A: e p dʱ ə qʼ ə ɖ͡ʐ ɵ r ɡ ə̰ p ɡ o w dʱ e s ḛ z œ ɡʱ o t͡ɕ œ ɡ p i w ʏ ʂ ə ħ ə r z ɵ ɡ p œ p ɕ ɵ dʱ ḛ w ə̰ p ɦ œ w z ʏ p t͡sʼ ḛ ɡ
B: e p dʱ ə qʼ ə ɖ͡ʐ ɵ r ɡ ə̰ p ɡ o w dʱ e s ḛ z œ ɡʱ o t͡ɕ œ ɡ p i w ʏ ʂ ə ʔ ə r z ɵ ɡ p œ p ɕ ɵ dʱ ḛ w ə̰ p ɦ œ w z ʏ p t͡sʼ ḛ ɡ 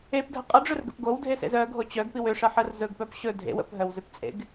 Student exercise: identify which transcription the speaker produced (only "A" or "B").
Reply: A